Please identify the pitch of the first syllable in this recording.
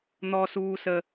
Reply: high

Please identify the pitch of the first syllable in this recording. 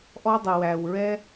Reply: high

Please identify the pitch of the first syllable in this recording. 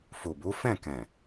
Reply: low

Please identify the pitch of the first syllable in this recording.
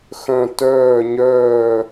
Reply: falling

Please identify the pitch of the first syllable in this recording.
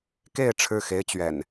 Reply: falling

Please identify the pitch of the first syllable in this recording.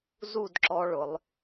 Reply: falling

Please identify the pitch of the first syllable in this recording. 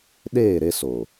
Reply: falling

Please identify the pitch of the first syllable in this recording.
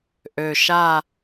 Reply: low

